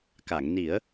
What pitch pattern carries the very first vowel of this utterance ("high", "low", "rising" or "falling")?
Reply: low